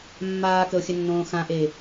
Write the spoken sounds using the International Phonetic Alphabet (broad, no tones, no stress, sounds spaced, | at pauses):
mː aː k ə o̯ xʲ ə nː õː x ã ʔ e